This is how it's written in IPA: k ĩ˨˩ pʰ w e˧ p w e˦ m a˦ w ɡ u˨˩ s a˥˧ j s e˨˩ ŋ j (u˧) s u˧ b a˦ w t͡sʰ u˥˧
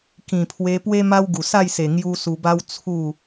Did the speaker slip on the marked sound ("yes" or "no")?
yes